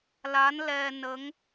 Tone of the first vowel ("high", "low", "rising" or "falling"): rising